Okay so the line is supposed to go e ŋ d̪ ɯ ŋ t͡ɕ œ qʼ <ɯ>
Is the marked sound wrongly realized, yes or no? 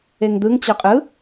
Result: no